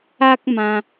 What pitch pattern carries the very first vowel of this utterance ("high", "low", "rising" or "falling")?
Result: high